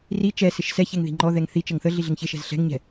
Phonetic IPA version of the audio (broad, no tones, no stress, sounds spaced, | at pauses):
r i t͡ʃ ɛ s ɪ ʃ s ɛ ç ɛ ŋ ð i̤ ŋ͡ǃ ɔ ð ɛ ŋ θ i t͡ʃ ə ŋ θ ə ɮ i ɮ ɪ ŋ ç ɪ ʃ ɛ̤ z ɬ ɛ̤ ŋ ɲ ɛ̤